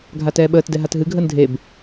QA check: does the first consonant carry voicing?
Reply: yes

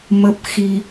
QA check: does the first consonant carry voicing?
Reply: yes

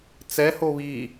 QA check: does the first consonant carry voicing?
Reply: no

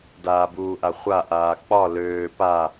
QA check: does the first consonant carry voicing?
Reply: yes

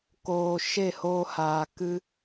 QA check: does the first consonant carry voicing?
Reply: no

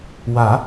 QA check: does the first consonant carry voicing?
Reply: yes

